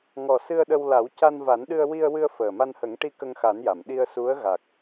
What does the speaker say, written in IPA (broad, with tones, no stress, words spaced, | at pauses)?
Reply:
ŋɔ˨˩ sɨ˧ə̯ ɗə˧w la˨˩˦wca˧nva˨˩˦n ɗɨ˧ə̯wi˧ə̯wɨ˧ə̯ fəː˨˩ma˧nhə˨˩˦ŋʈi˧ kə˧ŋxa˨˩˦nja˨˩˨m ɗi˧ə̯su˧˥ə̯ ɣa˨˩k̚